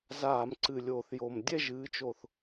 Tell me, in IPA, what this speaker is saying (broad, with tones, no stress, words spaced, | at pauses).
zaː˧˩˧mǀɨ˨˩lʲoː˨˩θ jo˨˩m dʲɛ˥˨ʒɨː˩˧t͡ʃo˨˩θ